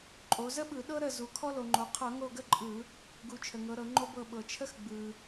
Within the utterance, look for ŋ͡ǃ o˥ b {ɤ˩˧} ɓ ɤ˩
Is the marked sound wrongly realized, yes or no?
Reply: yes